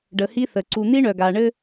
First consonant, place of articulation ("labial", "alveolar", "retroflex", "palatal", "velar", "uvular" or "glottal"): retroflex